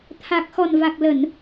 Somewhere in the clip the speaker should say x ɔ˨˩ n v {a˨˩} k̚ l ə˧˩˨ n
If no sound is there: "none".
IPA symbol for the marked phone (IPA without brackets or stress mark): a˨˩